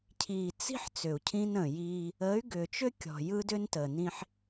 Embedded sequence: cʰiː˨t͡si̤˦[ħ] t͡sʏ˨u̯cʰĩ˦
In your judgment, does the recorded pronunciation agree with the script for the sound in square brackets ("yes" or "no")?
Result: yes